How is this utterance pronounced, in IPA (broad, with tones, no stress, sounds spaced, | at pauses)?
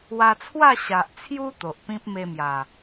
w a˧ t͡sʰ w a˥˧ ɕ a˨ ʔ t͡sʰ j u˧ t̪ o˨ ʔ p ĩ˦ p̚ m e˧ m j a˨˩